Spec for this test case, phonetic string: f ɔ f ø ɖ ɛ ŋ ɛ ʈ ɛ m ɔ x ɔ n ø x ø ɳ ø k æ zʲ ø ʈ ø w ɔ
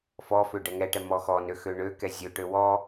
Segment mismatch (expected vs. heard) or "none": æ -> ɛ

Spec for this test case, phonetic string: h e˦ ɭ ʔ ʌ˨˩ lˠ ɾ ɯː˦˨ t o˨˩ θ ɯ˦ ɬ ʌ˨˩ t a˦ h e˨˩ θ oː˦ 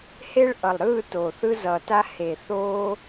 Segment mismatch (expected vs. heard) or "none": ɬ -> z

